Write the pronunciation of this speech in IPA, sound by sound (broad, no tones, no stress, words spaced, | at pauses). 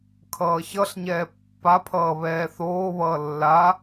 kʰʌːçʌɬɲɛː pːapʰʌː βɛːθoːβʌː lːa